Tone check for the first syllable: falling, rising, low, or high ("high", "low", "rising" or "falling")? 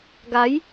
rising